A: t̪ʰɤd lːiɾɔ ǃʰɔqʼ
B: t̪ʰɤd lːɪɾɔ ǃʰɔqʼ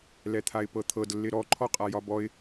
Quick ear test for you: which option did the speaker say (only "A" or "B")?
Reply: B